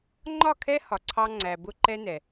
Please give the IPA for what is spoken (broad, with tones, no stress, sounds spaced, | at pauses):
ŋ͡ǃ ɒ˦˨ kʰ ɛ˦ h ɒ˨ ǀʰ ɑ˦ ŋ͡ǀ æ˨ b ʊ˦ ǃ ɛ˦ n ɛ˨